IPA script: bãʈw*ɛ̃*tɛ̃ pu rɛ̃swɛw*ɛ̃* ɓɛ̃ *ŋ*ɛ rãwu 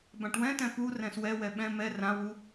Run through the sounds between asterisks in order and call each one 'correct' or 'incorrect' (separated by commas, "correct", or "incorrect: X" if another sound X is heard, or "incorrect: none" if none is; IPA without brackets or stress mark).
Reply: correct, incorrect: ɛ, incorrect: m